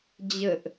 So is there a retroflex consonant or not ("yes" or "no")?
no